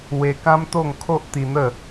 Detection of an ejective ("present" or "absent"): absent